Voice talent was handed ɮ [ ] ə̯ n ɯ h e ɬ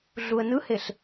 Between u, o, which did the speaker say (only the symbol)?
u